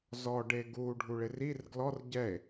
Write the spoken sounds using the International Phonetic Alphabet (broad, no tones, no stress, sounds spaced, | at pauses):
z ɔ ɖ e ɡ u ɖʱ u ɭ ɪ r i r ɡ l ɔ r ɟ ɛ e̯